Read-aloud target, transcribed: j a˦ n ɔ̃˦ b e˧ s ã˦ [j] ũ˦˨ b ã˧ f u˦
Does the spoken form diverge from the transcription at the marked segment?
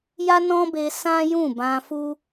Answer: no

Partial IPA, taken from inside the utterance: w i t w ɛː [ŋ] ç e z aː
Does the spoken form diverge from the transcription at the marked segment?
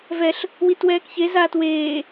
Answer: yes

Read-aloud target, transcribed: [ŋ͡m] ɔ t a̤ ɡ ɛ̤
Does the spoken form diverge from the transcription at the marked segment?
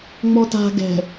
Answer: no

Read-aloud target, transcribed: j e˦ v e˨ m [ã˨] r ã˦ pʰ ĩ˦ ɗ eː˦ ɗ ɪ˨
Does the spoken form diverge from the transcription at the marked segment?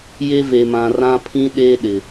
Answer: no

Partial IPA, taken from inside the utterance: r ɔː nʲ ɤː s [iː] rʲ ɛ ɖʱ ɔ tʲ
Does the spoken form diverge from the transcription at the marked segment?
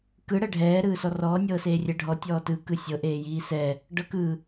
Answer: yes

